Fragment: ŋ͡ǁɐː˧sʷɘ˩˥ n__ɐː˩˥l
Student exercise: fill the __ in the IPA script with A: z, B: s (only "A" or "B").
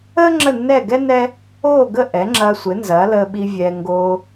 A